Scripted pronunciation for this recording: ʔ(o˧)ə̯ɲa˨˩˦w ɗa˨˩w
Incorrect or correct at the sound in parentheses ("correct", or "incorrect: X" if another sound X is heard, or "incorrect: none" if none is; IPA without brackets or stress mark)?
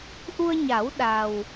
incorrect: u˧